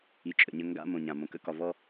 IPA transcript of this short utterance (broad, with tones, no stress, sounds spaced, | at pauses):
i˨ t͡ʃʼ ə̰˨ ɲ ə˦ ŋ ɡ a̰˦ m õ˨ ɲ ã˨ m õ˨ k ə̰˦ k ɒ˨ v ɔ˦